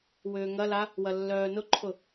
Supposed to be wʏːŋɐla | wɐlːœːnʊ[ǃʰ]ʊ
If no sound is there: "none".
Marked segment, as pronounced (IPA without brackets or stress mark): ǃʰ